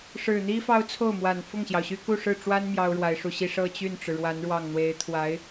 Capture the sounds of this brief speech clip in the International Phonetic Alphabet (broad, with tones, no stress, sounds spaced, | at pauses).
ʂ ɻ̩˨˩ n̪ i˥ f ɑ˥ ʊ̯ t͡sʰ o˥˩ ʊ̯ m w a˨˩ n f ʊ˥˩ ŋ ɕ j ɑ˩ ʊ̯ ɕ y˥ k u˥˧ ʂ ɻ̩˥˩ ʈ͡ʂ w a˥ n m j ɑ˥ ʊ̯ ɻ w a˧˥ ɪ̯ ʂ u˨˩ ɕ i˥˧ ʂ ɤ˥˧ t͡ɕ y˥˩ n ʈ͡ʂ ɻ̩˩ ɻ w a˧˥ n ɻ w ɑ˥˩ ŋ n̪ w e˧˥ ɪ̯ t̪ʰ w a˧˥ ɪ̯